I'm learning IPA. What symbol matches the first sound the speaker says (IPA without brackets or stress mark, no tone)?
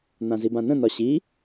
n̪